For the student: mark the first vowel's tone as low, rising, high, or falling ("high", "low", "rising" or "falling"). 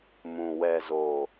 low